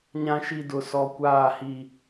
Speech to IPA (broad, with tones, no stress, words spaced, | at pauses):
ɲã˨ʃi˨ dʊ˨sɔ˨ kʷaː˦˨hi˦˨